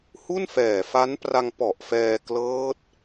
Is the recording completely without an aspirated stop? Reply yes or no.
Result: yes